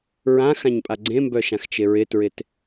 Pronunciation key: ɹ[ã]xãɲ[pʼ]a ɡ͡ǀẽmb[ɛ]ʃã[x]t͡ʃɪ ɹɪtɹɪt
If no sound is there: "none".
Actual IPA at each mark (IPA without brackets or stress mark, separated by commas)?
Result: ã, pʼ, œ, x